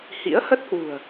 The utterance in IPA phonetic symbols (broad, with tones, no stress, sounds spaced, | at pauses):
h ḭ˧˥ ə̯ h ə˦˥ t̚ h w ṳ˨˩ ə̯